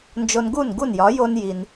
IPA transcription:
nd͡ʒo˧n ɡu˥˩nɡu˥˩njɒ˩˥ jo˥n ji˩n

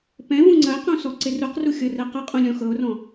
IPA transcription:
pɛ̃vũ ŋ͡ǀɐe̯qũ sɔǀɪruqru xʲɤrɛqɐqʼũ lʲɔ̃xɤo̯rɔ̃

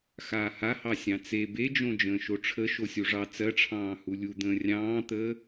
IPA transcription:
xaːhahɑ sʲɑ̃t͡se bed͡ʒõ d͡ʒə̃ːʃoʈ͡ʂʰə ʃosʲuʐɑ t͡sɜʈ͡ʂʰɑ̃ː hulʲu d̪ə̃ːrʲɑ̃ːt̪əː

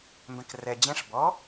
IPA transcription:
mbɛ̃krɛ d͡ʑẽʂ bɔ

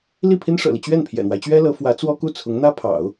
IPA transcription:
li˥˩pʰi˥nʂɤ̰˨˩li˦ t͡ɕɥɛ˥˩npʰjɛ̰˨˩n̪wa˦ɪ̯t͡ɕɥɛ˥ lɤ˧˥fwä˧˥t͡swɔ˥ ku˥˩t͡sʰʊ˧˥ŋn̪ä˥pʰɑ̰˨˩˦ʊ̯

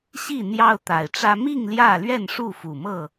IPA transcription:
ɕi˥˨ n̪jɑ˦ʊ̯t̪a˨˩ɪ̯ʈ͡ʂä˦ mi˥˨ŋ ljä˥˨ lɥɛ˥˨nʂu˥˨fu˨˩mɤ˥˨

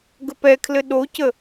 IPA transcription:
ɡəpɛkʰlɘ ɗocə

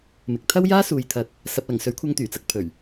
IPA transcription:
mɪ˨k̚ t̪ʰɐ˥wjaː˥suː˨jt̪ʰɐ˨t̚ | sɐ˨p̚lɐ˨˩ŋsɵ˨˥ɥkʷʰɐ˧ŋ t̪yː˨˩t͡sɐ˨k̚ pʰɵ˨˩ɥ

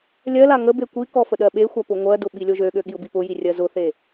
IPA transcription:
lʲɜla ŋəbe kʷikɔ fəɗɜɓexʷa pʊŋʷɜdʊ ɓilʲoʒøɠø ɠiʊ̯bipʊji rʲɜzʊθe

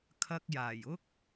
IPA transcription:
kʰɐ˧k̚jaː˨˩jʊ˥k̚

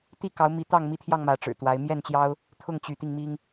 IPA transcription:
t̪i˥˨kɑ˨˦ʊ̯mi˨˦ t̪ɑ˥˨ŋmi˦t̪ʰjɑ˥˨ŋ mä˨˦ʈ͡ʂɻ̩˨˩t̪wa˨˦ɪ̯ mjɛ˥˨nt͡ɕjɑ˦ʊ̯ | t̪ʰʊ˥˨ŋ t͡ɕy˨˦t̪i˧ŋmi˦ŋ

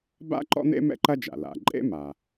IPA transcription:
ba̰˥ǃɔ̰˥n̪ḛ˥ mɛ̰˥ǃɐ˥d͡ʒa̰˩ la̰˩ ǃʼḛ˥ma˩

